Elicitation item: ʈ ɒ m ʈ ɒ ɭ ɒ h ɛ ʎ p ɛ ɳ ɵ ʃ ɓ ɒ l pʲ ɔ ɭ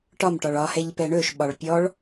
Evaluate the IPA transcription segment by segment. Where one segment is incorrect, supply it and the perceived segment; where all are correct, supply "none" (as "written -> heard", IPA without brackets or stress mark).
l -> ɭ